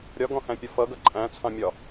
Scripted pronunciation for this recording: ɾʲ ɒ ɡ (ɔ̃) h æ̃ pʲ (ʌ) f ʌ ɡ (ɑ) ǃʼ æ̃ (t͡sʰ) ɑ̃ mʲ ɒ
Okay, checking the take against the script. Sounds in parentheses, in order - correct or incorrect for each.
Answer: correct, incorrect: ɒ, incorrect: ʌ, correct

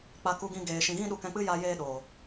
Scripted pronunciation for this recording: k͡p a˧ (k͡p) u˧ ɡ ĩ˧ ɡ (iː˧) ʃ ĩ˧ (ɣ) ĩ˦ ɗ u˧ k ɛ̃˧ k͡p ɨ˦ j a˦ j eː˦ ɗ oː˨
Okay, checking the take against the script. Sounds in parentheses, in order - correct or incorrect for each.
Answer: incorrect: k, incorrect: eː˧, correct

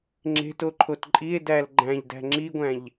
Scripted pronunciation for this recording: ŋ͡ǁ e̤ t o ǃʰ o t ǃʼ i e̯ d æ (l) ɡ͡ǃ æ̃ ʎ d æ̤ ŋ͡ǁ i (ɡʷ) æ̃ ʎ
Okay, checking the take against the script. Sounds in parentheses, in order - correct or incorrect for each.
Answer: correct, correct

